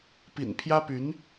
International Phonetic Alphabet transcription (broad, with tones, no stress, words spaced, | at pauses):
pḭ˨˩npʰjä˥py˧˥n